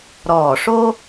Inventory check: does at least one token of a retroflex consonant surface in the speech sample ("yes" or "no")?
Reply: yes